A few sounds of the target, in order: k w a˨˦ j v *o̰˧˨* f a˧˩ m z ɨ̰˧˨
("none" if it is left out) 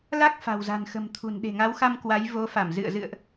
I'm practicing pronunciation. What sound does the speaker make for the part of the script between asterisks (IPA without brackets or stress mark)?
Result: o˨˦